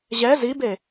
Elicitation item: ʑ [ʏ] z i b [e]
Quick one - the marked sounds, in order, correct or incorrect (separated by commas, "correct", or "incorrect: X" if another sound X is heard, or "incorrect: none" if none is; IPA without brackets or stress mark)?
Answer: incorrect: ɛ, correct